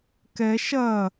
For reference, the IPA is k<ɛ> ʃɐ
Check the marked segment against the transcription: correct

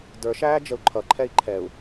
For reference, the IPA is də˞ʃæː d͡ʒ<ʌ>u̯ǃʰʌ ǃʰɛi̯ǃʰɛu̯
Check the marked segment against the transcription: incorrect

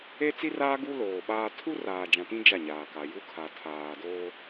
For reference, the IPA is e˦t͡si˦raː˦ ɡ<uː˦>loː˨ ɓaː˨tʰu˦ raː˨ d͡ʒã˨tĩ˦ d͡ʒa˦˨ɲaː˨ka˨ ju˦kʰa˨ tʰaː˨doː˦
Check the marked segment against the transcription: incorrect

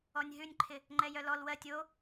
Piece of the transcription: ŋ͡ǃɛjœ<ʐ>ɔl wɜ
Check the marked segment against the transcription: incorrect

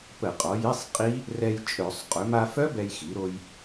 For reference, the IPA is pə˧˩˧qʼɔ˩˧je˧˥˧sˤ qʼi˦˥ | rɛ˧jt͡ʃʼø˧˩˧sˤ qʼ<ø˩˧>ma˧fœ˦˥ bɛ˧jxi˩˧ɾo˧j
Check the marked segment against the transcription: correct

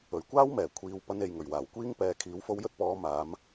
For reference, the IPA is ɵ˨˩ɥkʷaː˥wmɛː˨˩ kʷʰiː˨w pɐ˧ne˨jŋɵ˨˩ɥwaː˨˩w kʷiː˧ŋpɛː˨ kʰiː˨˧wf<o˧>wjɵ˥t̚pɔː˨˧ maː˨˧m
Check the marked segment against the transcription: correct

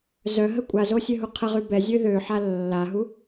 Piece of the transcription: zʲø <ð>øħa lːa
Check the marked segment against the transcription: correct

